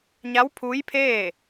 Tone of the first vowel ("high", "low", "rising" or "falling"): rising